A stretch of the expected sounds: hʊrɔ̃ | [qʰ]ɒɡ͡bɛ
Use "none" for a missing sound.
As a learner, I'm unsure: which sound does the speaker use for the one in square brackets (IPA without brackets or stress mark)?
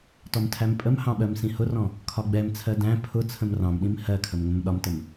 kʰ